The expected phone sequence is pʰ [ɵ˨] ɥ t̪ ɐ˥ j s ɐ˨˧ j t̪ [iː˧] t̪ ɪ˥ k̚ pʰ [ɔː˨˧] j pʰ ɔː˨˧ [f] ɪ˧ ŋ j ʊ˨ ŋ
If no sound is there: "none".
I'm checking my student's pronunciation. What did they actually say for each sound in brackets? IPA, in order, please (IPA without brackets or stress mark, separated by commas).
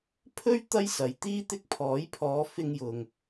ɵ˥, iː˥, ɔː˨˥, f